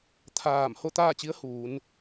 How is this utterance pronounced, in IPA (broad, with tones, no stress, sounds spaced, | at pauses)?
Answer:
t̪ʰ aː˧˩ m h o˥˨ t̪ aː˥˨ t͡ɕ i˧˥ ə̯ h uː˩˧ n